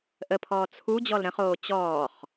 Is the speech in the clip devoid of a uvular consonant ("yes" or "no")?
no